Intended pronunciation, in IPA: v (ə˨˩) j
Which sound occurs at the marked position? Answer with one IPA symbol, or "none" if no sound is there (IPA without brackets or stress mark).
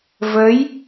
ə˧˥